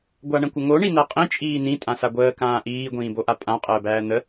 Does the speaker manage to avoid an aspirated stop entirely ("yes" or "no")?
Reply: yes